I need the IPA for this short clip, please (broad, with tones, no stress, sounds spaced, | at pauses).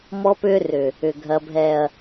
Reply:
m ɔ˦ p ʏː˦ r ʏ˨ | ʏ˨ ɡʱ ɐ˨ bʱ ɛ˨ ɐ̯